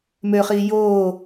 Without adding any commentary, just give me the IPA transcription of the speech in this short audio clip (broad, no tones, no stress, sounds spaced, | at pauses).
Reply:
m ø χ iː j oː